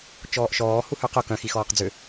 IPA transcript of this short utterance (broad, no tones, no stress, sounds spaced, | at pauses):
t͡ʃ ɔː ʔ ʃ ɔː h u h ø q ʊ k œ̃ x i x ɔː q d͡z ʏ